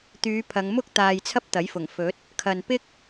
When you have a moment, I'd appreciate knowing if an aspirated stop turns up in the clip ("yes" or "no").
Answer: yes